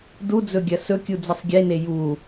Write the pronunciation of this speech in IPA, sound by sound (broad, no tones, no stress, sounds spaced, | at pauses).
d u d͡z ɵ ɡʲ ɐ s ɵ kʲ u d͡z ɨ sˤ ɡʲ e n e j u